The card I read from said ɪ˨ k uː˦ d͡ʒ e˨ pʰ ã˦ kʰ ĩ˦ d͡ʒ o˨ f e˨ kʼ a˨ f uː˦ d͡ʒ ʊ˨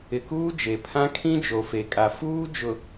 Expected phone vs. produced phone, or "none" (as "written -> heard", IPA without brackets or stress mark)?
none